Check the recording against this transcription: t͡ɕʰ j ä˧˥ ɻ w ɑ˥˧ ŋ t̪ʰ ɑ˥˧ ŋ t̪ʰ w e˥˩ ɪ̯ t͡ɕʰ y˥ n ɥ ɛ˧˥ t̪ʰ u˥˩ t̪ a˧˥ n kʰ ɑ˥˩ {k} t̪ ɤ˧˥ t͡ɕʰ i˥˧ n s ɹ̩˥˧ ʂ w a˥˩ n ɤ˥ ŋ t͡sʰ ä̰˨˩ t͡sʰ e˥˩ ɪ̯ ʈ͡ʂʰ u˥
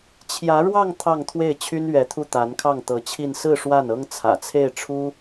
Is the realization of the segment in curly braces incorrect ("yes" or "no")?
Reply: yes